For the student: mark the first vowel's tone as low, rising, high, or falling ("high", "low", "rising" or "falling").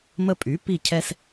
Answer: high